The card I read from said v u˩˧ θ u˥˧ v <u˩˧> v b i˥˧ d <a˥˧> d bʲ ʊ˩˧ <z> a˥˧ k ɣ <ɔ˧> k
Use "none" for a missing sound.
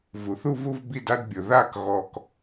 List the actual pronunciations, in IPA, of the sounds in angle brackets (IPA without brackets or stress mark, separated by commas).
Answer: u˥˧, a˥, ð, ɔ˧